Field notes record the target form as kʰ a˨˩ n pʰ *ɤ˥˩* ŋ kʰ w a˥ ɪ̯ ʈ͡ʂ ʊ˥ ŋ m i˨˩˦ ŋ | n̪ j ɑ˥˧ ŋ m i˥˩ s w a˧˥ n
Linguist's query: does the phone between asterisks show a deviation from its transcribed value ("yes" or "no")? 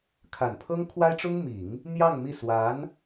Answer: yes